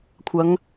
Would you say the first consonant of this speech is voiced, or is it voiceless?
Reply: voiceless